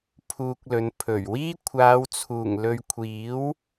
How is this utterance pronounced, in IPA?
pʰuː˧k̚lɵ˨˧n pʰɵ˨˩ɥwiː˥ kʷʰaː˨˧wt͡sʰuː˨˩ŋlɵ˨ɥkʷʰiː˨˥w

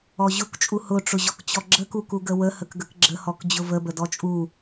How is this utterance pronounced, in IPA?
ɔʑʊkt͡ʃʼu hʊʈ͡ʂʊʑɔk t͡ɕɔɡ͡ǁəku kuɡəwə həkɡəkɡ͡ǁəhɔk d͡ʑʊvəbə dɔt͡ʃʼu

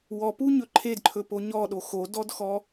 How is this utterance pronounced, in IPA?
wɔpuɲɵ ǃʰedǃʰɵpo ɲɔɗo xodɔdxɔ

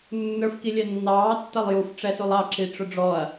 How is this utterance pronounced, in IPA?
nːə˞f kilʲɛnːɑː tːɐlˠjuf ʈ͡ʂɛsulˠɑ ǁiʈ͡ʂʊɖ͡ʐɔɐ̯

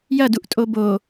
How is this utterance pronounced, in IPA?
jɐduʔ tʼobo

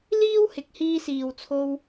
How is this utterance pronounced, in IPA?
liː˥whɪ˨k̚ hiː˧siː˨w t͡sʰo˧w

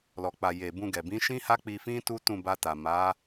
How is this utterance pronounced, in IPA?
lɔ˨ k͡pa˨ je˨ bũ˧ ɡɛ˨bĩ˨˦ ʃĩ˦ha˦k͡pi˧fĩ˦ tu˦tũ˦˨ba˧ta˨ ma˨˦

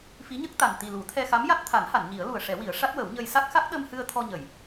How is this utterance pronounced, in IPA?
fi˧˥ɲə˦˥k̚t̪a˨˩n t̪i˨˩lu˨˩˦t̪ʰɛ˧xa˧˥m ja˦˥t̚t̪ʰa˨˩˦nha˨˩˨n ɲi˨˩˦ə̯lu˨˩ə̯ʂɛ˨˩˦wi˨˩˦ə̯ ʂa˦˥t̚wə˨˩˦wɲə˧j sa˦˥k̚xa˦˥k̚ ɗə˧mhɨ˧ə̯ t̪ʰɔ˧ɲə˨˩˨j

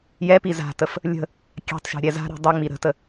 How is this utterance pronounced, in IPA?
jɛpi za̤təf | lʲə̤ | kʲa̤tˤʃa̤ ɾʲɛza̤ɾi̤ dˤu ŋ͡miɾə̤tə

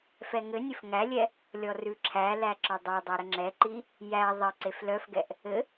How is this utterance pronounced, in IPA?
fɛŋɘnʲɘf ŋælʲɛ | lʲɔrʉǁʰælæ ǁɔdˤodˤɛ ɾəŋ͡ǁɛǃi | jæ ðˤɘ ǀeflœfɡɛʔ | ɘ

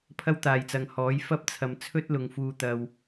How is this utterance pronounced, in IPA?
pʰɐ˥wt̪aː˨jt͡sɐ˨ŋ hɔː˨˥j fɐ˥p̚t͡sʰɐ˨mt͡sʰɵ˥t̚lʊ˨ŋ fuː˨t̪ɐ˨w

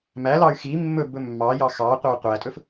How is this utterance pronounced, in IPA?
mælɑy̯ xi mːɵbɵ mːɑjɑ xɑqʷæw qʷætʼɵf

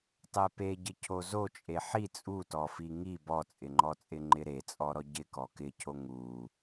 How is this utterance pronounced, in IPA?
tˤɛpeɟɪ cʰozo t͡ʃʼeħi t͡sʼu tɔfiŋi bɔt͡sʼɪŋ͡ǃɔt͡sʼɪ ŋ͡ǃɪɾet͡sʼɔɾɔ ɟɪkɔ kɪcʰo ŋu

